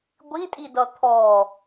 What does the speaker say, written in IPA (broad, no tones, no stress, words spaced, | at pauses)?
ɡʷitʼidʌ t̪ʰɔ